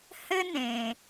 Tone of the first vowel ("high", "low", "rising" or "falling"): high